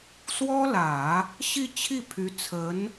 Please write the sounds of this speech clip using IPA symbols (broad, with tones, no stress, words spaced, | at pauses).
swɔ˥lä˨˩˦ | ɕi˥˧t͡ɕʰi˥˩ pʰy˧˥t͡sʰə˧˥n